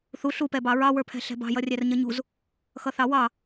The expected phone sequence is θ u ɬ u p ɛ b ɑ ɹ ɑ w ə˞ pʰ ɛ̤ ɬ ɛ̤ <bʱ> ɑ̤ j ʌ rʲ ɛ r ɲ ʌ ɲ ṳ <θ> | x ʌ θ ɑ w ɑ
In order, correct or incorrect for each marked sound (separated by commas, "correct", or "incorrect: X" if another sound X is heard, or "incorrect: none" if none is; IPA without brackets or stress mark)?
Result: incorrect: b, incorrect: z